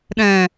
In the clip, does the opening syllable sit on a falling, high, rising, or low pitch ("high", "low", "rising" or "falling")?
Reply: low